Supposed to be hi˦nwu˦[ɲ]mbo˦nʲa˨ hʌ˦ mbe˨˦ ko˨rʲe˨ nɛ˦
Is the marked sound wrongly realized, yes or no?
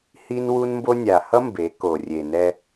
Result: yes